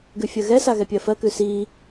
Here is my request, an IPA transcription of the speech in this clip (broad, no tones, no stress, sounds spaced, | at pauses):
ɡ ʉ fʲ ɜ ɣ ɛ s a ɣ ɛ pʲ ɜ f ɜ k ʉ s i